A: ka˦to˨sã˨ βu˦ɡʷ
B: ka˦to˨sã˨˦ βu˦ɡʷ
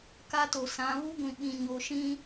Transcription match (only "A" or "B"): B